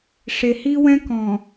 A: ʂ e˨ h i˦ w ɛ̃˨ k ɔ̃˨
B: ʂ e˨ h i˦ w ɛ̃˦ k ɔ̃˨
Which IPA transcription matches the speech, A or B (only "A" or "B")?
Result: B